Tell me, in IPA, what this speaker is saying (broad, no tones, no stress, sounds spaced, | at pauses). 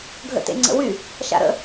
ɡʱ ə̰ t ḛ ŋ͡ǀ ə̰ w y | ʃ a̰ ɾ ə̰